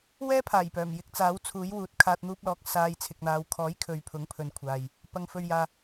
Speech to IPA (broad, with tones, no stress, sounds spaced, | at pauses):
w ɛː˥ pʰ aː˨˩ j p œː˨˩ m j ɪ˧ k̚ t͡s aː˨˥ w t͡sʰ uː˨˥ j w uː˨˥ t̚ kʰ aː˧ t̚ n̪ uː˥ p̚ l ɔː˨˥ k̚ s aː˧ j t͡sʰ ɪ˨ k̚ n̪ aː˨˧ w kʰ ɔː˨˥ j kʰ ɵ˨ ɥ pʰ ʊ˨˥ ŋ pʰ ɵ˨ n kʷʰ aː˨ j | p ɐ˨ ŋ f ɵ˨ ɥ j aː˨